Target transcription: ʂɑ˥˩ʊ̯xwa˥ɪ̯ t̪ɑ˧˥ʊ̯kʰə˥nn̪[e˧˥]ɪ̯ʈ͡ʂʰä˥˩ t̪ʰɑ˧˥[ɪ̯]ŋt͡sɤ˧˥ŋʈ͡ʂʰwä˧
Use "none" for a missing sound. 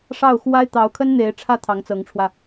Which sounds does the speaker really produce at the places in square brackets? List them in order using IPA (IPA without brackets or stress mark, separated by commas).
e˧˥, none